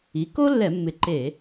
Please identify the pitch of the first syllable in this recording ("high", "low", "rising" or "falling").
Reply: rising